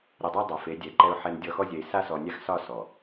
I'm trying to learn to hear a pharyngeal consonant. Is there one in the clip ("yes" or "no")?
yes